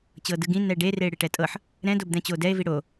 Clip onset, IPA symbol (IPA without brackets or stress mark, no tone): t͡ɕ